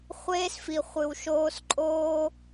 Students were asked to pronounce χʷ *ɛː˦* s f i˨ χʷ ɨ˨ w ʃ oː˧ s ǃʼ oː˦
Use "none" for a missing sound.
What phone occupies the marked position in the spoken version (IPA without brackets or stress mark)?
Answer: eː˦